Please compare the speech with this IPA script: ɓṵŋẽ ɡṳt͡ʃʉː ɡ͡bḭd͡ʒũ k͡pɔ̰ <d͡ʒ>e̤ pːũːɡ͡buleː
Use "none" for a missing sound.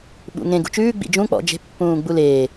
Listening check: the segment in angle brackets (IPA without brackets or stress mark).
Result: d͡ʒ